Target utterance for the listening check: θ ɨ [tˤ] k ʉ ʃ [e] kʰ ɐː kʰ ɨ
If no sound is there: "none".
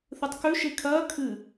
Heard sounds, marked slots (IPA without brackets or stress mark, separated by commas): tˤ, e